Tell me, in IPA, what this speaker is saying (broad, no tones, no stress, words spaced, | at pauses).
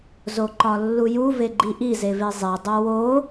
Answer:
zoǃɒlːuju veɡ͡ǃiʔi zevezˤe dˤowo